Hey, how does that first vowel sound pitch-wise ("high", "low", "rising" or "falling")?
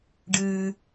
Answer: low